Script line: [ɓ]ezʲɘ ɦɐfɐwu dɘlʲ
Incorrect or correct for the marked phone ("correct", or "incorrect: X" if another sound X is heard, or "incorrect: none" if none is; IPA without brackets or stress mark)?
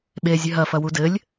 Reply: correct